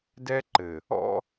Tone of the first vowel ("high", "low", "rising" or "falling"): high